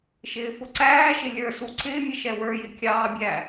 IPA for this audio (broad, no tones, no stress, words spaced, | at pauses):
ʃɪːfʊǀæːʃɪ lʲə˞su ǀɪːmʲə ʃɛwə˞jɪ kʲɑːbʲæ